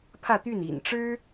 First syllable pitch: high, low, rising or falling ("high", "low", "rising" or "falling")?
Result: falling